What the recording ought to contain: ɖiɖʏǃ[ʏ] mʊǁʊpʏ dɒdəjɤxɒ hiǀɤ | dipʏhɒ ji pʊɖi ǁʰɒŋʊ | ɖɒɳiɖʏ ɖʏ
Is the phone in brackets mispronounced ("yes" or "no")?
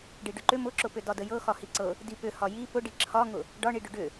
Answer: no